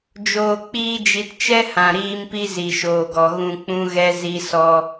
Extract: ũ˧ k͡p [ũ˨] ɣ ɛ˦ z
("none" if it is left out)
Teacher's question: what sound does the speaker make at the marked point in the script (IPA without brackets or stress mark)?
ũ˦